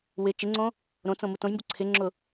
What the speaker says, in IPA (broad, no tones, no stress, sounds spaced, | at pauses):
w ɪ t͡ʃ ɪ ŋ͡ǀ õ | ɾ õ t͡s õ m u t õ j m b u ǀʰ ɪ ŋ͡ǁ ʊ